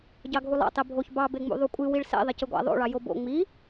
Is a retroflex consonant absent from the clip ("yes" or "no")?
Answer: no